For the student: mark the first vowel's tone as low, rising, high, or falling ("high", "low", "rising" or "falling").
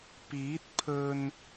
rising